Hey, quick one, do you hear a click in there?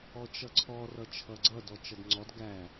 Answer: yes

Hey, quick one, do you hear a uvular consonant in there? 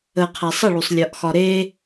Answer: yes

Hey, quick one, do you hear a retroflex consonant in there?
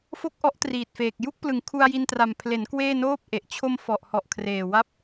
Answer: no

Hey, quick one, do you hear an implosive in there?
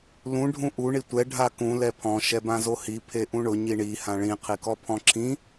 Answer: no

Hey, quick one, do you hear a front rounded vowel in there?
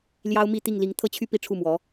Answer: yes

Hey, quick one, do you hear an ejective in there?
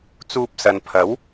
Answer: no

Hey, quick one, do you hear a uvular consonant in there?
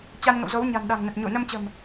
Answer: no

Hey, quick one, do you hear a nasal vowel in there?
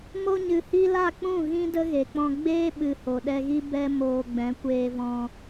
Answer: yes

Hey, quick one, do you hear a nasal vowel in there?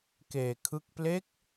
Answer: no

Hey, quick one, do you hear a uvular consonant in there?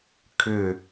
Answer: no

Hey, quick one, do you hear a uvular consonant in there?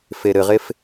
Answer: yes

